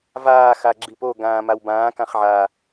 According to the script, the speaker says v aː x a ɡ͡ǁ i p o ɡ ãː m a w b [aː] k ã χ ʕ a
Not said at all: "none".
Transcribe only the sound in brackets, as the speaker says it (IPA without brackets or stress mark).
ãː